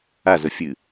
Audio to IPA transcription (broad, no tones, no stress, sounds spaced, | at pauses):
a z ə fʲ ɨ